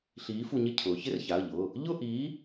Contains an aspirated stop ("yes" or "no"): yes